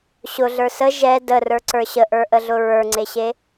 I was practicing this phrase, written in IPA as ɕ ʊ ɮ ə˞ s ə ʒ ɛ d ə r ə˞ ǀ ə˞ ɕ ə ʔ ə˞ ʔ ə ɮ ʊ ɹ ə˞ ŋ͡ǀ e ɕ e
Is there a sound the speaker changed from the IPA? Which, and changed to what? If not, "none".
none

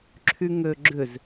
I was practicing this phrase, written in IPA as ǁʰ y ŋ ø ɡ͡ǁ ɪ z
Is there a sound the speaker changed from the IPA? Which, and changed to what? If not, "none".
ɪ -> ʏ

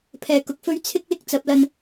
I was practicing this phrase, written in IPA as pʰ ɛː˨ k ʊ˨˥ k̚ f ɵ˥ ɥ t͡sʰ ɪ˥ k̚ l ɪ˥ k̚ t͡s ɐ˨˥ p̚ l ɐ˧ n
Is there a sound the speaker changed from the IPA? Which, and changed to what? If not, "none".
none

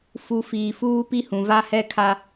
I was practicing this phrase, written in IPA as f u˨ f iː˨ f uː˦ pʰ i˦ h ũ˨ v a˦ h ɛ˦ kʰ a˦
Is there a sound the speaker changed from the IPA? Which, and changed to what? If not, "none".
pʰ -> p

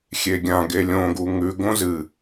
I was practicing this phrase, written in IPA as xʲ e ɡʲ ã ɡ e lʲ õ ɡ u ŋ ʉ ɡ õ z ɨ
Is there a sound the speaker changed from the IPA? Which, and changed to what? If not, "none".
none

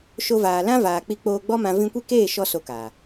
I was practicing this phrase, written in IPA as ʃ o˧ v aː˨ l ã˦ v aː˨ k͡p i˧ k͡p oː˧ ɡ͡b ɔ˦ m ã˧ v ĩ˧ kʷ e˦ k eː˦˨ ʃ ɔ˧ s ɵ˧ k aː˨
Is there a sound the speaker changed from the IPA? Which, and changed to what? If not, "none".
ɵ˧ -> o˧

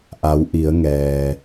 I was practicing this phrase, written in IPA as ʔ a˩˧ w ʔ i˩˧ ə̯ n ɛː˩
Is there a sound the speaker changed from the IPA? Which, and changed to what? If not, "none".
n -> ŋ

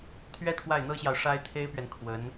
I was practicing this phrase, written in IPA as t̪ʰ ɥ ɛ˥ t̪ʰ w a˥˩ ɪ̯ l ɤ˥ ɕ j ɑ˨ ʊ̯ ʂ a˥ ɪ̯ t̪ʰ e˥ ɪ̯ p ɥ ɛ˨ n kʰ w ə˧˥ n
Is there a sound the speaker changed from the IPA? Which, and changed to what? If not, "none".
l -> n̪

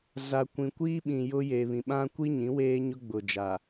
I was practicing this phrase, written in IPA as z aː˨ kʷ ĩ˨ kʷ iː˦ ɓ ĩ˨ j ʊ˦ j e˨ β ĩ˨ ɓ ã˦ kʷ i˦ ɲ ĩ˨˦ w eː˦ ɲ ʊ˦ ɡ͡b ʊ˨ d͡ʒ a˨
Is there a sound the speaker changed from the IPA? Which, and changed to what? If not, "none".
none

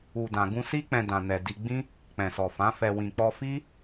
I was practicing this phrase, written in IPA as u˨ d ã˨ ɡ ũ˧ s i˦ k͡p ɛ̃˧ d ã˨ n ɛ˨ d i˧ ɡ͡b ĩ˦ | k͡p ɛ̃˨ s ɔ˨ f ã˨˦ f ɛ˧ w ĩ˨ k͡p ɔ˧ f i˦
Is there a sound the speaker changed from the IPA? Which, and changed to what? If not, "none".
none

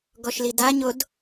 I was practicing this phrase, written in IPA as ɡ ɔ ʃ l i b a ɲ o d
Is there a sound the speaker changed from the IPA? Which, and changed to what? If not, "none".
b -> d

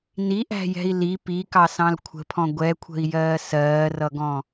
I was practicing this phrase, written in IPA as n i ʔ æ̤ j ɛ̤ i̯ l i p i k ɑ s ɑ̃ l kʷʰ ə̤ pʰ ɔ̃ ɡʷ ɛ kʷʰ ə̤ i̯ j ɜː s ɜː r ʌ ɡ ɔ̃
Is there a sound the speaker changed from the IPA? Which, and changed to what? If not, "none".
none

